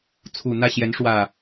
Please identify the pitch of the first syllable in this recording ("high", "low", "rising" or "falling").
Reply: low